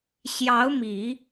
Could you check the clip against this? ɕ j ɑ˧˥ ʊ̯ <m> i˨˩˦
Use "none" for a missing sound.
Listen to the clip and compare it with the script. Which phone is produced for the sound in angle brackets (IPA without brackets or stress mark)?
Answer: m